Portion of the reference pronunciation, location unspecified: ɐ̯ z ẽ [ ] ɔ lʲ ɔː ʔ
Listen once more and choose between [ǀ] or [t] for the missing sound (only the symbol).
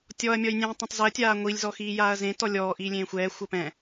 t